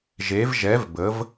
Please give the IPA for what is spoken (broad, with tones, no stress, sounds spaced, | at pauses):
ʒ e˨˦ v ʒ ɛ˨˦ v b ə˨˦ v